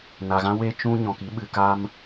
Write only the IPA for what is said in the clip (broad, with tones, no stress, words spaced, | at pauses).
na˨ɣã˦we˦ t͡ʃũ˦ ɲɔ̃˨ki˨˦ɓɨ˨ ka˦m